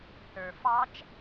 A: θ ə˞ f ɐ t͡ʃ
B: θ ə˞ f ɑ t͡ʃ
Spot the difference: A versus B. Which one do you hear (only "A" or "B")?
B